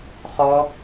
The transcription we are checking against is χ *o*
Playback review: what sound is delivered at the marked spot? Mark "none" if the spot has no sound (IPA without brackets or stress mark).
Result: ɔ